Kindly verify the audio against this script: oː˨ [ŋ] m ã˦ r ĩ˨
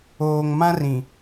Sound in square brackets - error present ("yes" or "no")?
no